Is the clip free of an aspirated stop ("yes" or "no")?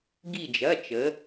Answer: yes